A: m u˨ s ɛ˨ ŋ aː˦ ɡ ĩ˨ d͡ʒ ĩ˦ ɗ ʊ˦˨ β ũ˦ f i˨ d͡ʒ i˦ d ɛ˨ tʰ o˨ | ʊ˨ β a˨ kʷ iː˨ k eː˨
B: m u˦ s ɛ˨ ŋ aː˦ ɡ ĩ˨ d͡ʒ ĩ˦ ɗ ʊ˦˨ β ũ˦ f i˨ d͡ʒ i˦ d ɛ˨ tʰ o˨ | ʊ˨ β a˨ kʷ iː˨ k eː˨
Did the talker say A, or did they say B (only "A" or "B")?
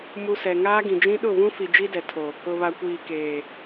B